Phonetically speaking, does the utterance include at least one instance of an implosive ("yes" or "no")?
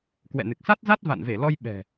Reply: yes